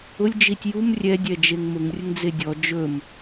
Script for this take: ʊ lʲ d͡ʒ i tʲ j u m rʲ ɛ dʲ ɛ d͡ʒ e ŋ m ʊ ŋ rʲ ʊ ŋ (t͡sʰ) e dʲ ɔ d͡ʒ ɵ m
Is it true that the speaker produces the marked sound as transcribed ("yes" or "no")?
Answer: no